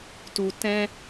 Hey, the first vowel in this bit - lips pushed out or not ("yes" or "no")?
yes